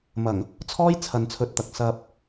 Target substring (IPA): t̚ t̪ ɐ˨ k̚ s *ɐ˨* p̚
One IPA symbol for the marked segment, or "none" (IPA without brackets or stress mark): ɐ˧